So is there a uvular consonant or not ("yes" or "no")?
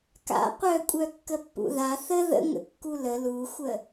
yes